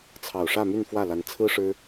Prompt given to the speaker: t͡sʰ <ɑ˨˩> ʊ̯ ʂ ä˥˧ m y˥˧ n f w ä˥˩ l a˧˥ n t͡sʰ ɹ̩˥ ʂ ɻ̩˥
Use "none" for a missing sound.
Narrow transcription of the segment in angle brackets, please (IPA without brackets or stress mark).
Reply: ɑ˨˩